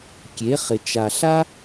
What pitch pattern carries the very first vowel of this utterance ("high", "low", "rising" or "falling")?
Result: rising